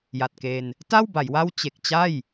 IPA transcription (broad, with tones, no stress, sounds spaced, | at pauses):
j a˨˩ t̚ k e˧ n | t a˥˩ w b a˩˦ j w a˥˩ w t͡ɕ e˨˩ k̚ t͡ɕ a˥˩ j